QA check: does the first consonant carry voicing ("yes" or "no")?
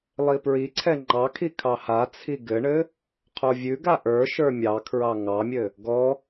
yes